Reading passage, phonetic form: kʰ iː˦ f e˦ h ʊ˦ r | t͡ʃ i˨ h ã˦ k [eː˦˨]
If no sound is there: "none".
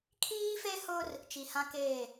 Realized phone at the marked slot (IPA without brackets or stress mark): eː˦˨